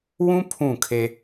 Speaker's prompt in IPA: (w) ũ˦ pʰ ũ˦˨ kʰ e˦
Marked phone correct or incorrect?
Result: correct